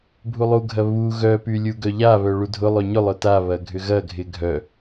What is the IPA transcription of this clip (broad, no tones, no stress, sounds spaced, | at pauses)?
bʱ u lˠ u ɡʱ ɐ β u ɣ œ p y lʲ u ɡ œ ʎ a β œ ɭ u dʱ ʊ lˠ ø ɲ ʊ lˠ œ t a β ɐ ɡʱ ʏ ɣ ɐ ɡʱ ɪ ɡʱ œ